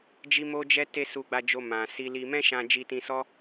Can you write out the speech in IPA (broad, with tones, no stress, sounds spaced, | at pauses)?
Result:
d͡ʒ i˦ m o˦ d͡ʒ ɛ˦ t e˦ s u˧ ɡ͡b a˧ d͡ʒ o˧ m ã˨ s i˧ l i˧ m ɛ̃˦ ʃ ã˧ d͡ʒ i˧ t ĩ˧ s ɔ˦